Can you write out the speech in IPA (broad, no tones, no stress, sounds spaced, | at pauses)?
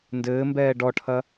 n d ɘː m b ɛː ɖ ɔ ʈʰ ɐ